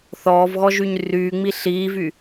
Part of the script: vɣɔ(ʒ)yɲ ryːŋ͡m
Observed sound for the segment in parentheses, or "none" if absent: ʒ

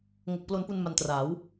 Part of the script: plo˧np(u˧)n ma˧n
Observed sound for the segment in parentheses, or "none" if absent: u˧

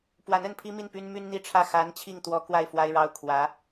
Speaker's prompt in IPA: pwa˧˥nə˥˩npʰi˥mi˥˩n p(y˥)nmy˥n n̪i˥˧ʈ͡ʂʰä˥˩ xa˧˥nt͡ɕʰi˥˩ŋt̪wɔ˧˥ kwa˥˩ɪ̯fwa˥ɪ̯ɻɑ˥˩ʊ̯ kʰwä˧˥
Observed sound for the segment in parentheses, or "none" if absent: y˥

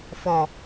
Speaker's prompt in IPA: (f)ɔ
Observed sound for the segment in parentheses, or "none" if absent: f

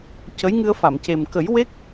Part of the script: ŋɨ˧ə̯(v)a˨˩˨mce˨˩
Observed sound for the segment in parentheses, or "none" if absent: f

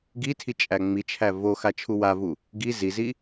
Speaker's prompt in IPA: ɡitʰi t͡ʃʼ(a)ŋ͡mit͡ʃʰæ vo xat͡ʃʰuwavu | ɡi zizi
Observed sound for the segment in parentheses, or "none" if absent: æ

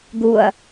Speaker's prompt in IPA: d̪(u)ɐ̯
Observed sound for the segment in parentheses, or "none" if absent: u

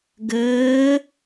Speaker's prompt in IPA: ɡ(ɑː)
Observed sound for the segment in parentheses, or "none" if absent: əː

